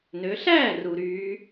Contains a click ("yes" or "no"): no